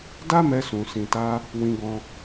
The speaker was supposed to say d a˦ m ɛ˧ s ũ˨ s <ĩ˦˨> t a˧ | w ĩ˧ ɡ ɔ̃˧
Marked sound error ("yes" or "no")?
yes